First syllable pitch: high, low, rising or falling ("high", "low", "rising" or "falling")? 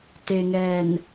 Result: low